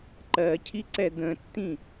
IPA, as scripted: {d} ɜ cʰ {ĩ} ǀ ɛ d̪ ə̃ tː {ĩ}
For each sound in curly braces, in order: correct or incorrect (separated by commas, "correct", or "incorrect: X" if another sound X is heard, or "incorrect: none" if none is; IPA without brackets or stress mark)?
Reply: incorrect: ǃ, incorrect: i, correct